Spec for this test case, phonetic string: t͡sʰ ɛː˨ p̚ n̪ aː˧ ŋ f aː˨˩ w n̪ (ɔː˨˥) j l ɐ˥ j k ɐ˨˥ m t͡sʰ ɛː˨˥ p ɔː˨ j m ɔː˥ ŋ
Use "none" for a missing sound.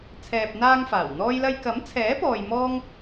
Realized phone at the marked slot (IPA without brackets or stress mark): ɔː˥